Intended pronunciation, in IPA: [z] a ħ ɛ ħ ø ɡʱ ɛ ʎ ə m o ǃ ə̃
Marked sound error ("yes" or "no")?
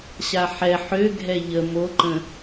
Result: yes